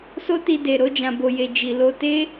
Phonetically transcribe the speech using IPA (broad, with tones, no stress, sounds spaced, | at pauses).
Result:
s o˦ t i˧ d e˨ ɾ o˨˦ d͡ʒ ã˧ b o˧ j e˧ d͡ʒ i˨ l o˧ t e˦